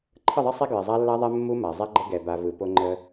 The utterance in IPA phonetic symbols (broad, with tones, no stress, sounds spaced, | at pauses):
ǃʰ ə˦˨ ðˤ ɛ˦ sˤ e˦ ɡ ɹ ɪ˨ zˤ a˦ lː a˦ ðˤ ɛ˦ mː u˦ m a˨ zˤ e˦ ɡ͡ǃ ə˦ ɡ ɛ˨ b a˨ v ɯ˨ p o˦ ŋ͡ǃ ə˦